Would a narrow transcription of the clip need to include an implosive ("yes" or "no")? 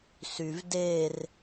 no